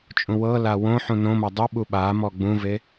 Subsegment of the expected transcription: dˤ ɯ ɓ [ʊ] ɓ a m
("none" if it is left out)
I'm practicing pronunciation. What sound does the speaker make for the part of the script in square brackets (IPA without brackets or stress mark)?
u